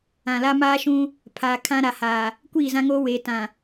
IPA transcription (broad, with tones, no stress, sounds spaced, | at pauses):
ã˨ l a˦ m aː˦ ʃ ũ˦ | pʰ aː˨ kʰ ã˦ ɾ a˨ h aː˨ | kʷ iː˦˨ z ã˦ ŋ oː˦ w eː˨˦ t ã˨